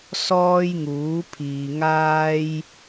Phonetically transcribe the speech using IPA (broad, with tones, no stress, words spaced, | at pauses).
sɔː˥jŋuː˨˥pʰiː˨ ŋaː˥j